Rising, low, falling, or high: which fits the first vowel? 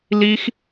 high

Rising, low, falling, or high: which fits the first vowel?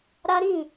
high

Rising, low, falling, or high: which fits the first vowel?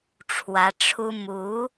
rising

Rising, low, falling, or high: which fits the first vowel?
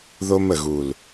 high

